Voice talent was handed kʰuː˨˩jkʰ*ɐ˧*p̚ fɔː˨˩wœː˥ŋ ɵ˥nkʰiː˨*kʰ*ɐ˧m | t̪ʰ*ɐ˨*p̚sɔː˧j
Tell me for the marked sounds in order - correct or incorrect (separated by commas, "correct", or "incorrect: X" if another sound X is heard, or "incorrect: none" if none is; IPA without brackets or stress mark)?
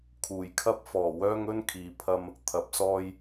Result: incorrect: ɐ˥, incorrect: pʰ, correct